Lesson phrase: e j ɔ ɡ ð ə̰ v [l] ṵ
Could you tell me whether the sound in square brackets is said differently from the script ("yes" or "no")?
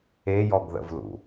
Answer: no